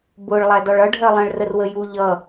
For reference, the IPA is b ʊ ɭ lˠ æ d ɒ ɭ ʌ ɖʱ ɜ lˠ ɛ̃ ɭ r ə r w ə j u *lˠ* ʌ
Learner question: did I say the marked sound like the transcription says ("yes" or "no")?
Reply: no